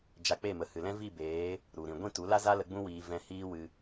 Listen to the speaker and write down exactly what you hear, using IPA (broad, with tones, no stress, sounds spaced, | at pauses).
d͡ʒ a˧ k͡p e˦˨ m ə˨ h ɨ˨ l ɛ̃˦ v i˦˨ b eː˨˦ | ɾ u˨ ɾ ĩ˨ ɡʷ ĩ˦˨ t u˨˦ l a˦ z a˦ l ə˧ ɡ͡b ũ˦ w iː˧ v ɛ̃˧ h iː˦ w ɨ˧